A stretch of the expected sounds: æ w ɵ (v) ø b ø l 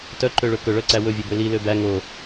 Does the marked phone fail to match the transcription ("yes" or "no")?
yes